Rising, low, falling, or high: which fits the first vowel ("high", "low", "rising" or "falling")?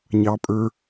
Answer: low